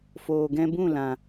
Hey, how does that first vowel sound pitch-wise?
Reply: low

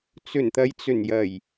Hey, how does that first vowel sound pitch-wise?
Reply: low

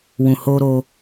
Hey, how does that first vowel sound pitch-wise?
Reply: low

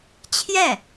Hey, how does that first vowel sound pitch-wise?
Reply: falling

